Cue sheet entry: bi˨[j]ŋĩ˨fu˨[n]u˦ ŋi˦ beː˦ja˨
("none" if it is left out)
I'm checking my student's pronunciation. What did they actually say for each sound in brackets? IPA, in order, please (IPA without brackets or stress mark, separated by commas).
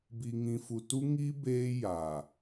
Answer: none, t